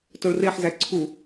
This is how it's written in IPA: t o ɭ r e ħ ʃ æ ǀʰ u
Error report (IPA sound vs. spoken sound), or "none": ʃ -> z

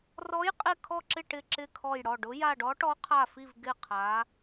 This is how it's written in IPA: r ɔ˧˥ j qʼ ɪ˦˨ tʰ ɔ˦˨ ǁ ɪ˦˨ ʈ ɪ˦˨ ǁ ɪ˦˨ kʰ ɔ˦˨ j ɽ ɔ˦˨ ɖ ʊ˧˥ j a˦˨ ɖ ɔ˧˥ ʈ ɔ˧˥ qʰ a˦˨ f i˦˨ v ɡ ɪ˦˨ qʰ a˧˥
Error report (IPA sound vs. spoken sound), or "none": tʰ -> kʰ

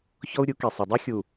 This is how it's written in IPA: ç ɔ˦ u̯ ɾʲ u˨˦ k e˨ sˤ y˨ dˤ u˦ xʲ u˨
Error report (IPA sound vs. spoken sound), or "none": y˨ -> e˨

